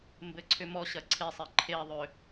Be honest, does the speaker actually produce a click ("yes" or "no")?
yes